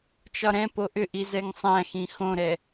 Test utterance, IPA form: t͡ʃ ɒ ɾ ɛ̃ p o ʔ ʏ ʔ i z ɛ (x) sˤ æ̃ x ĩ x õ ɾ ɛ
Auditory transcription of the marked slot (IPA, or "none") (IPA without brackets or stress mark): ŋ